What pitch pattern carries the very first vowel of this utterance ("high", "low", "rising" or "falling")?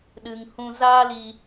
low